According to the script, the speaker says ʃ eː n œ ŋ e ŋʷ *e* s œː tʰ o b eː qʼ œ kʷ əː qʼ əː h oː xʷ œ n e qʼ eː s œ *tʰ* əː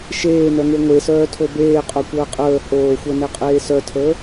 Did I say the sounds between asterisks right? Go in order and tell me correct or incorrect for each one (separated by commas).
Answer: correct, correct